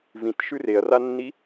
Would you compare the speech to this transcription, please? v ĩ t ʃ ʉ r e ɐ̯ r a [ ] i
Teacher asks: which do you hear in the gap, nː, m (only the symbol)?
nː